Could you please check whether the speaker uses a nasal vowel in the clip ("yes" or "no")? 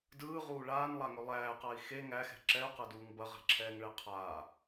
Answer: no